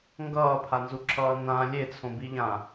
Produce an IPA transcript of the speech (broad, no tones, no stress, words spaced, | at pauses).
ŋɡʌːpʰanzuǁʰʌː nã lʲet͡sʰõbiʎã